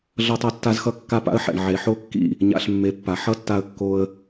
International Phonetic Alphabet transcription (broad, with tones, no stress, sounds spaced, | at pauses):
ɮ ʌ˦ tˤ a˦ tː a˦ z x ʌ˦ kː a˦ p a̰˦ ə̯ ħ ɛ̰˨ ɳ ʕ e˨ ħ o˦ kː ḭ˦˨ | ɲ a̰˧ ɬ mː e˨˦ pː a˨ ħ ʌ˦ tː a˧ ə̯ kː o˧ ə̯